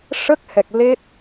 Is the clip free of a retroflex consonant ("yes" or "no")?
no